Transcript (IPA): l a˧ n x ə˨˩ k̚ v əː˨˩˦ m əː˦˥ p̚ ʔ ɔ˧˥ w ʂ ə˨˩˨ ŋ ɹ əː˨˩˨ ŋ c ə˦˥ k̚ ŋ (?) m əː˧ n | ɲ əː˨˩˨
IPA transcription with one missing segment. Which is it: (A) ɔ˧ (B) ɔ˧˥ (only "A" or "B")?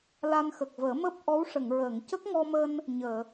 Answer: A